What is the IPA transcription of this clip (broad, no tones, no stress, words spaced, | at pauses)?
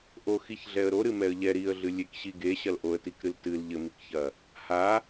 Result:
ʔo xiçɮɛə̯ɾo ɾɨmɛə̯ʎɛ ɾiə̯ɮɨ lʲekɕiɡe ɕɐlʔoə̯tikɾɨl tɨl ʎɘmikçɐ | ha